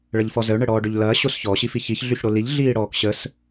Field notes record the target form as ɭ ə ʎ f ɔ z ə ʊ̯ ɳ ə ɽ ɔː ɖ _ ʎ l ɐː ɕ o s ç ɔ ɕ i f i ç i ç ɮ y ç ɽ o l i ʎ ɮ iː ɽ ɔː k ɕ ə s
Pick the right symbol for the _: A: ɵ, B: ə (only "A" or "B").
A